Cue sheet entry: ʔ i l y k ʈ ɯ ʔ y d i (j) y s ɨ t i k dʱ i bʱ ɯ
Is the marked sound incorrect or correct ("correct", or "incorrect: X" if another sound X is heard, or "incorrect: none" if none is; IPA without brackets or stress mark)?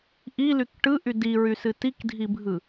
incorrect: ɹ